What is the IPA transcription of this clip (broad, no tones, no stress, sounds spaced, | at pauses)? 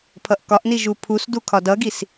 pʰ ʌ ʔ k ɒ ʔ n i ʒ u pʰ u s d u kʰ ɒ d ʌ ɡ i s